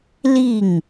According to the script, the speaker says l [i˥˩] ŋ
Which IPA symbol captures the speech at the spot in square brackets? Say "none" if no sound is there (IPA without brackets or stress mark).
i˥˩